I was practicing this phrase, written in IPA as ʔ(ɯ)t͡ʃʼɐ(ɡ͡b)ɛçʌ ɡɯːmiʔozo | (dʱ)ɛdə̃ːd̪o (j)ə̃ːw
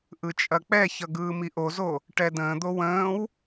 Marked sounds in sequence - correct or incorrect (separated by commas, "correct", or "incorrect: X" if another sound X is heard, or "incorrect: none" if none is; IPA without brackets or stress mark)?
correct, incorrect: k͡p, incorrect: ʈ, incorrect: w